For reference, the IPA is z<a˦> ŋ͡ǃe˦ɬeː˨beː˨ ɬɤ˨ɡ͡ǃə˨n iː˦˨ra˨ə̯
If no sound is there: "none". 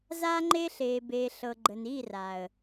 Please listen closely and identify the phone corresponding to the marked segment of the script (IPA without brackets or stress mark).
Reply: a˧